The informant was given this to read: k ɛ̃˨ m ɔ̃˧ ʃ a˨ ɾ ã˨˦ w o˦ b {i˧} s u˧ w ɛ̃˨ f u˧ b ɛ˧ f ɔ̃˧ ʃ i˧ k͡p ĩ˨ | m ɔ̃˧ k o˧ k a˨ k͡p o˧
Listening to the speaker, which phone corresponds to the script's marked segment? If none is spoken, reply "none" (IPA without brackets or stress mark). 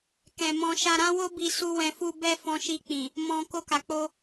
i˧